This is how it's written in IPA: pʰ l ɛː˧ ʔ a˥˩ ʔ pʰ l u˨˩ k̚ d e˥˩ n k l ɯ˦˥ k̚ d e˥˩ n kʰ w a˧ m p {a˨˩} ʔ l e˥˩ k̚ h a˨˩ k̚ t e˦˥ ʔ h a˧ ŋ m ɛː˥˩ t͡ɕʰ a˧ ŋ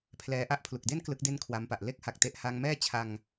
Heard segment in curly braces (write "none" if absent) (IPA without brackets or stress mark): a˨˩